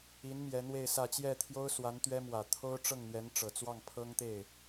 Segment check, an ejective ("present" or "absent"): absent